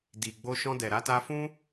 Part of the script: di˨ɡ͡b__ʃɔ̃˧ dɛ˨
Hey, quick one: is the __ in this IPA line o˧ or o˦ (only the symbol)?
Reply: o˧